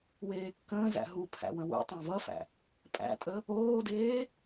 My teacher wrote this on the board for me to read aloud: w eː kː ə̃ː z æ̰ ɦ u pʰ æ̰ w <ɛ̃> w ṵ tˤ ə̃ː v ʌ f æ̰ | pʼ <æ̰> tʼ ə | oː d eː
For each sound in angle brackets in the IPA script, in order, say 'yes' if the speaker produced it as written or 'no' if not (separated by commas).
no, yes